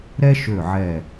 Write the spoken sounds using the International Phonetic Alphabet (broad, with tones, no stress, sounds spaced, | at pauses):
ɾ ɛ˥ ʃ ø˧˩ ʕ ɛ˧˩